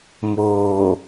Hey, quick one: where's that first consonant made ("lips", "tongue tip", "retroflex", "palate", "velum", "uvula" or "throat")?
lips